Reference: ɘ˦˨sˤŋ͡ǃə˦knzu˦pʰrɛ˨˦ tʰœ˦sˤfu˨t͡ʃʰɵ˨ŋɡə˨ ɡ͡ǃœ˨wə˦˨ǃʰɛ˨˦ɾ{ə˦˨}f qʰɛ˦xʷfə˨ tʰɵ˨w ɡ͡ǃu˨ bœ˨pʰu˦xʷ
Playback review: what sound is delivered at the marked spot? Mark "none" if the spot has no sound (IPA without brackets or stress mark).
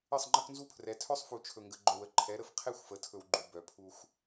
ə˨